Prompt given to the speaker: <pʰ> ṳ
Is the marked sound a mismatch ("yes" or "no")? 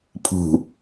no